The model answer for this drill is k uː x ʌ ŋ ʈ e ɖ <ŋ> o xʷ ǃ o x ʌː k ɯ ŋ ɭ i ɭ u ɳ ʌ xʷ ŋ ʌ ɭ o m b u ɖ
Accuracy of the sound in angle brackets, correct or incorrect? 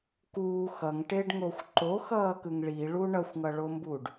correct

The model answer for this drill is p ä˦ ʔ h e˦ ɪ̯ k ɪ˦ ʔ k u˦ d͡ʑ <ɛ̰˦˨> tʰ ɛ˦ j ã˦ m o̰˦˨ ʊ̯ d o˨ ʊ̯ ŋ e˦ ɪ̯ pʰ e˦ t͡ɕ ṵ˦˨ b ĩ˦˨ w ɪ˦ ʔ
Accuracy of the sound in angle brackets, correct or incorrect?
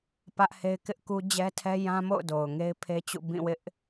incorrect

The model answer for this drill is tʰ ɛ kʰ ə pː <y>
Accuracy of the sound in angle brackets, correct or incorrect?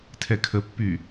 correct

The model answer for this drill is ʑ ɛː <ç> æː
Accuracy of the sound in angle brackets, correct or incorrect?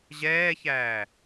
correct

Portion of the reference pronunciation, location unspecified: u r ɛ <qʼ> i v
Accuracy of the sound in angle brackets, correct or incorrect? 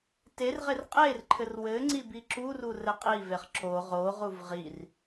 correct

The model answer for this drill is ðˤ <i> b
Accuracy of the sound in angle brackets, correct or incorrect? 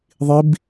correct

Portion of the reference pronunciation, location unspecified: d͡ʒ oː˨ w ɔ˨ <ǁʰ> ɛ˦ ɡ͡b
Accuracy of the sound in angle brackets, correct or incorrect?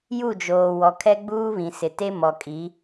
incorrect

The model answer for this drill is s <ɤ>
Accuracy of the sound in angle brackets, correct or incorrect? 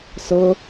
correct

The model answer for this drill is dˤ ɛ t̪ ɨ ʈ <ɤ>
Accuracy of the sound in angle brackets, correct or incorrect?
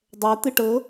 correct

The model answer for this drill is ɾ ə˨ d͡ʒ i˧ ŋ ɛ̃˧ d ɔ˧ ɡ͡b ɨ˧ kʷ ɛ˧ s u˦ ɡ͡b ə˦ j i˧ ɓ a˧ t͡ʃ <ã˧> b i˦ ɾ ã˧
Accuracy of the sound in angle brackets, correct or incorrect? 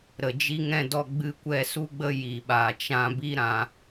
correct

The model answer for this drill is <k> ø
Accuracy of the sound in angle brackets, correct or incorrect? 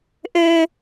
incorrect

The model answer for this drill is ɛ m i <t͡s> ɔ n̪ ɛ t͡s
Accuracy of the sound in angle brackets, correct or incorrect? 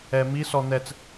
incorrect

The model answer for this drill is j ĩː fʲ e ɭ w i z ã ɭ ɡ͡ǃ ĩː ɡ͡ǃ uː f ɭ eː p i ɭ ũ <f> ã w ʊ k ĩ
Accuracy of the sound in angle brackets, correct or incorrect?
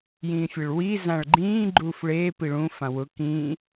correct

